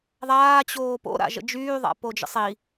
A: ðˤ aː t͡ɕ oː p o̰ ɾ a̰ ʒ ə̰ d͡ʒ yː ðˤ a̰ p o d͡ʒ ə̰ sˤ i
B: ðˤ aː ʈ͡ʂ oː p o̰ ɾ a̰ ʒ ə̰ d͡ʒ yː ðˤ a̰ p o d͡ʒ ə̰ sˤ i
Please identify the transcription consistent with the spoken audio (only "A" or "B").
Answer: A